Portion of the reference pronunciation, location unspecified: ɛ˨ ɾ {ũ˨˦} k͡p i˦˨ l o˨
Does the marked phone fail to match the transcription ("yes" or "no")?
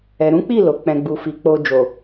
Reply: no